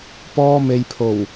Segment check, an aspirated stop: present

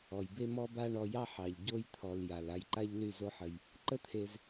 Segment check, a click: present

